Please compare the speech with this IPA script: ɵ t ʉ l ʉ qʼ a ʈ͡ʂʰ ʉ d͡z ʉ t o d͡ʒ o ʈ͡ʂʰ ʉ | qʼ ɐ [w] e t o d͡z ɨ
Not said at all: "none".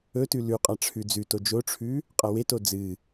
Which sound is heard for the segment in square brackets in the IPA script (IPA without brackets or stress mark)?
w